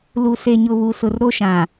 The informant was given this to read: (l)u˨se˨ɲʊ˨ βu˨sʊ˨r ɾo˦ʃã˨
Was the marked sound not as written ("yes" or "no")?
no